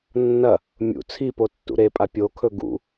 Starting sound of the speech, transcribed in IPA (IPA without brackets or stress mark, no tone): nː